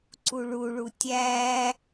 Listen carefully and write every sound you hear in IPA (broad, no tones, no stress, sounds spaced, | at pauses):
ǀ u ɭ u ɭ u tʲ æ